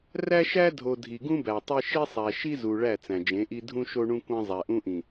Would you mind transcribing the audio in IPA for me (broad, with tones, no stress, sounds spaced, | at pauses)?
r æ˦ ʃ æ˦ dʱ o˨ dʱ i˨ ɡ ũ˦ b æ˨ tˤ e˦ ʃ i˦ sˤ æ˨ ʃ i˦ z u˨ ɭ æ˦˨ t͡s æ̃˨ d͡ʒ ẽ˨˦ ʔ i˦ dʱ ũ˦ ʃ o˦ ɳ ũ˦ kʷ æ̃˦ zˤ æ˨ ʔ ũ˦ ʔ ĩ˨